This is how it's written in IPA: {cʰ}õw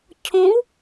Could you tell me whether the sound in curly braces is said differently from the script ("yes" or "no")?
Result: no